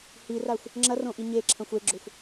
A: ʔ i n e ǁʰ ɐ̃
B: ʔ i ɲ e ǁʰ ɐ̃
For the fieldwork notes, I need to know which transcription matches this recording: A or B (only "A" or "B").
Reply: B